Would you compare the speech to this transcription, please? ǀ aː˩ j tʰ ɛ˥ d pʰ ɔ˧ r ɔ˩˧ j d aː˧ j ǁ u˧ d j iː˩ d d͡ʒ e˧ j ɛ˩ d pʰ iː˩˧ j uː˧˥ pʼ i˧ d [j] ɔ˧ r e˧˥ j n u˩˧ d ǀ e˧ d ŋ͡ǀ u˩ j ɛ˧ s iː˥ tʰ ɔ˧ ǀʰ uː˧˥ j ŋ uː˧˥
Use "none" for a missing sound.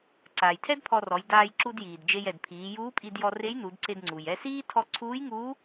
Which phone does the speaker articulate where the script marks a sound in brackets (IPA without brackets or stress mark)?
j